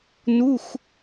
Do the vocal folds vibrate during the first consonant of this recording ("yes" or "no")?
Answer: yes